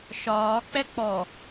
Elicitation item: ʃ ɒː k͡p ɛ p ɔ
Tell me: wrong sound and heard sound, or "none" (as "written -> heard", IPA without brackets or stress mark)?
p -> k͡p